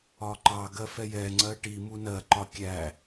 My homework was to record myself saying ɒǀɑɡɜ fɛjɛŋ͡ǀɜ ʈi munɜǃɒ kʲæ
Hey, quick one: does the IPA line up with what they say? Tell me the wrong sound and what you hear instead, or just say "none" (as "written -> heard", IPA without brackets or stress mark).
ǀ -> ǃ